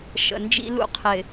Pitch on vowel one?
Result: low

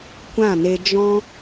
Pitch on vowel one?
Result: falling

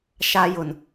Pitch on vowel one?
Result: high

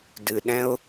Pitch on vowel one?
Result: low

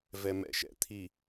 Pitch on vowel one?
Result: low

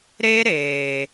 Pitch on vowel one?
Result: high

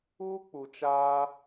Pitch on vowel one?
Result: high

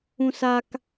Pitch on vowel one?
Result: high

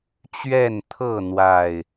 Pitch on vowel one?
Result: falling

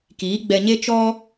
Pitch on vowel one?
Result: rising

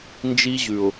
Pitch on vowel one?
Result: high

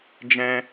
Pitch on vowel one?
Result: high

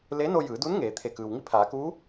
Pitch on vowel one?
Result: rising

